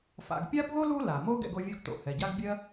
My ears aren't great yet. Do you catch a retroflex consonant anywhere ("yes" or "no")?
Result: no